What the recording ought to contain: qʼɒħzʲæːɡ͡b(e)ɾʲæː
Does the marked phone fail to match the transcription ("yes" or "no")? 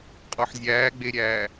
no